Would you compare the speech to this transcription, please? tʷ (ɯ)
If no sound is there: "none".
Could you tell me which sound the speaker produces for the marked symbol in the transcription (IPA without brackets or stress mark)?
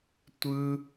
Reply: ɯ